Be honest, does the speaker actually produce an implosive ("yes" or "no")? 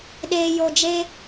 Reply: yes